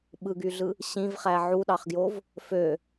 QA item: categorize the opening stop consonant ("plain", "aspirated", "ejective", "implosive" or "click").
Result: implosive